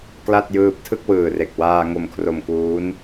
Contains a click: no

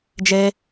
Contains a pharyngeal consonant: no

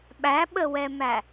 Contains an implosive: yes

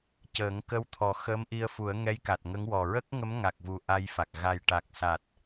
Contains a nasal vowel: no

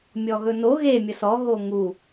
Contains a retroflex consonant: no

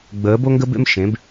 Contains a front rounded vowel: no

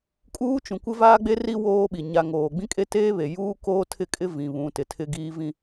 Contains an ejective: yes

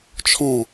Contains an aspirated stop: yes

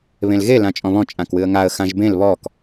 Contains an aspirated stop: no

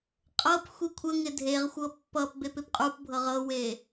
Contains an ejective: yes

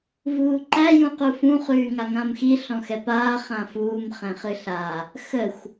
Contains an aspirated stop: no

